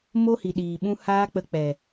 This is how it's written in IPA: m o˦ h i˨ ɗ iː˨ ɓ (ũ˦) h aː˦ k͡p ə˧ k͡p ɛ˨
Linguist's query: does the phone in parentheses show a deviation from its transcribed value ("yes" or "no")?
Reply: no